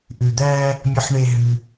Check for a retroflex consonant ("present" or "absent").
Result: present